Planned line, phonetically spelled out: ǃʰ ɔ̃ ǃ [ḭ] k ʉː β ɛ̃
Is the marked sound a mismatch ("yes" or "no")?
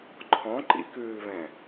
no